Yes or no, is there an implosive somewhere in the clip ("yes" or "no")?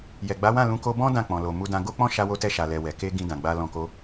no